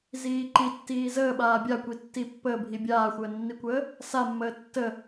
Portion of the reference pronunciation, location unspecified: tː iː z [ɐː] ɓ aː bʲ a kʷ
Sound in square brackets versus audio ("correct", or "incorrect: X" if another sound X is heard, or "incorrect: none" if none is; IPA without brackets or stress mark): incorrect: əː